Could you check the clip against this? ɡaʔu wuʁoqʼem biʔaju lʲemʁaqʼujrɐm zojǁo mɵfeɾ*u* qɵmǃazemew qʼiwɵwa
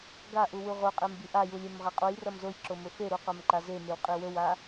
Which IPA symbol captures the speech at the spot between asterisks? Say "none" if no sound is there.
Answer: u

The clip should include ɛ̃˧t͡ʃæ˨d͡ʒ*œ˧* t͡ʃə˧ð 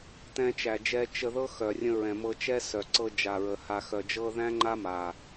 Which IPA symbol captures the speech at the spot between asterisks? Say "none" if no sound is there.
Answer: ɛ˧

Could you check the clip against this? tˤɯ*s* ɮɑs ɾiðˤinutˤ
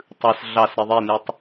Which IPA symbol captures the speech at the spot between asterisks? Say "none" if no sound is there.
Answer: s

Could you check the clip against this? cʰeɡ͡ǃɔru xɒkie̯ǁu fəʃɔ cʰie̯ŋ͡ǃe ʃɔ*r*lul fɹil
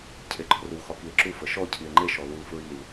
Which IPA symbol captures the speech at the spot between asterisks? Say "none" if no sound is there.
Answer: none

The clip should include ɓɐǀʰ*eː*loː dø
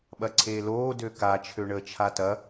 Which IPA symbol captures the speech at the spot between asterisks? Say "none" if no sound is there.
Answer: eː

